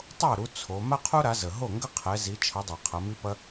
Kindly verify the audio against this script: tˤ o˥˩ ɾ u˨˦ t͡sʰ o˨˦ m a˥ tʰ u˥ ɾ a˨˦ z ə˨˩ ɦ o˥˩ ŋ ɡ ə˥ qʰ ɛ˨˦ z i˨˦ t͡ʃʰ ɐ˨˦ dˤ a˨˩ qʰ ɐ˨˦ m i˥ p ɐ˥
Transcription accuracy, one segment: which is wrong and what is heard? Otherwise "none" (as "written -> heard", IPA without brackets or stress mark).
tʰ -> qʰ